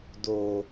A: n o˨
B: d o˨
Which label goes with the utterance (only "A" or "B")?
B